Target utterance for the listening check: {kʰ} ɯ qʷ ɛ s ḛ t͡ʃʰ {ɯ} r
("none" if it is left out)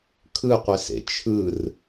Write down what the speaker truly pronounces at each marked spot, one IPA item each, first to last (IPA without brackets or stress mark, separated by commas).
kʰ, ɯ